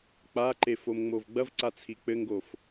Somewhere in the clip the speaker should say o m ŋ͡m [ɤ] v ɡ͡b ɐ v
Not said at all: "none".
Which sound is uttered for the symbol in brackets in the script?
o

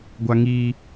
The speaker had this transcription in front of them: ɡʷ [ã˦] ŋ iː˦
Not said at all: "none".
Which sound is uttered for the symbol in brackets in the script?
a˦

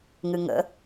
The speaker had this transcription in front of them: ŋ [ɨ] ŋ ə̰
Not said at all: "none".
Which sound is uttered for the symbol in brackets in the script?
ɨ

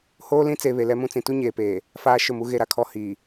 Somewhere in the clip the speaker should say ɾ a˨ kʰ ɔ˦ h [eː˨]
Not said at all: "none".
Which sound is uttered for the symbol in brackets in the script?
iː˨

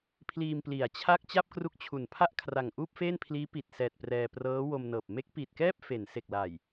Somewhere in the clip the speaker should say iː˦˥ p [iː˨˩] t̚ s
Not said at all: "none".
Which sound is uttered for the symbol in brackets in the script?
i˨˩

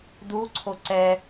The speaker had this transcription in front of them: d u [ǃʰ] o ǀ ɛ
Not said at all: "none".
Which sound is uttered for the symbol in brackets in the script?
ǀʰ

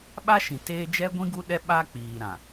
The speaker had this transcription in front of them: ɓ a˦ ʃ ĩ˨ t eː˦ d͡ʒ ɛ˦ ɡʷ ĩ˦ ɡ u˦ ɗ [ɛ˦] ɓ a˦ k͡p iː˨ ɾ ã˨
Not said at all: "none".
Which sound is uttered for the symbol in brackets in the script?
ɛ˦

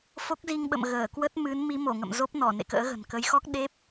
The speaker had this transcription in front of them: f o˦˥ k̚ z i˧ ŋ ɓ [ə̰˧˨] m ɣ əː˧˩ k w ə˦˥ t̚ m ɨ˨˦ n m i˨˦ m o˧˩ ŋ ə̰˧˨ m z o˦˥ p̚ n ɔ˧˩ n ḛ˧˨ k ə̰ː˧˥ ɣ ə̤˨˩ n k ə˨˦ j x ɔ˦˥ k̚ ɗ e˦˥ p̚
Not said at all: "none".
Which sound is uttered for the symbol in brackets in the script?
ə̰˧˨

